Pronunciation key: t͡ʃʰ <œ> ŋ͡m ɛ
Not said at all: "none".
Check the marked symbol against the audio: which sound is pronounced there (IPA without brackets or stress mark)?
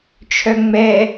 œ